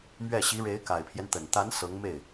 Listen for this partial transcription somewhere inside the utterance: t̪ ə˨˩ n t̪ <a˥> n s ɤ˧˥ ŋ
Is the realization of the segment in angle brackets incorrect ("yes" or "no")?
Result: yes